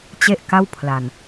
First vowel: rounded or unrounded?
unrounded